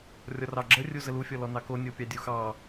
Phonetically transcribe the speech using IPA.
rʲɔrɑɡ͡ǁə rʲuzəlu fʲɔlɔnɑko nʲopʲɑdʲuxɑ

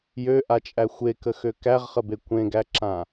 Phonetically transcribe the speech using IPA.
jøʔat͡ʃʼæ xʷekəxø kæʁχəbe kʷẽɡæǁã

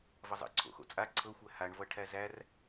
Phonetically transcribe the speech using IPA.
vʌzˤə̰ǀʰo̰ xo̰t͡sʼa ǀʰɤxʷæ haɳvʌ ʈʰæzær

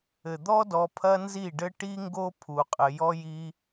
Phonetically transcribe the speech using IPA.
ɘ˨ d̪ɔ˦dɔ˧ pʰɐ˦nzi˦˨ɖɘ˦ ʈi˦ŋɡo˦ pʰu˧qʼɘ˧ jɔ˦ji˦

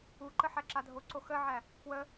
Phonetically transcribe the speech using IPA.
uǃə ħæǁadʱoǀo xəʕæ | kwə

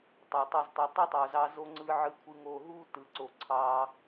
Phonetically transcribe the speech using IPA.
tˤø˨tˤø˧ztˤø˧ tˤɯ˦tˤo˨zɑ˧ zo˧ŋ͡ǀɯ˧ ʕɯ˧kʷʰɯ˧ŋo˧ ɦu˦ tɯ˨ǀo˨ ǀʰɑ˧

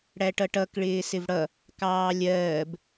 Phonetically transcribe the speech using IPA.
ɽæʈʌʈʌk ɭɪːsɪvɽʌ | kɑːlʲɜːb

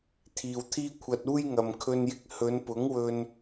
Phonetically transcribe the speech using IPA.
t̪ʰiː˨wt̪ʰiː˥kʷʰɐ˧t̚ uː˥jŋɐ˨m kʰɵ˧njɪ˧k̚ hɵ˨˧npʊ˨˥ŋ wɵ˧n

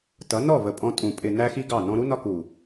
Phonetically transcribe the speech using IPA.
tʌ˨˦nɔ˦˨və˨ pʼɔ̃˧ tʼũ˨pʼɪ˨ næ˦xi˦ɡɑ˦˨ nɔ̃˧ɾu˦nɒ˦˨k u˨

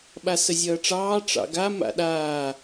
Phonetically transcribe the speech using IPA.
ɓasəzʲʌːʈ͡ʂɑː ʈ͡ʂɑ̰ɡa ma̰ɗaː

